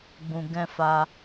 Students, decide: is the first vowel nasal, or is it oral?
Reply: nasal